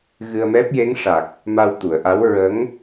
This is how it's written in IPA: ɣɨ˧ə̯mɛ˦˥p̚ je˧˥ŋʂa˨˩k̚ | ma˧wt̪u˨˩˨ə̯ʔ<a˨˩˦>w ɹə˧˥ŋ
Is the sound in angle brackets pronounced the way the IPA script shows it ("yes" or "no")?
no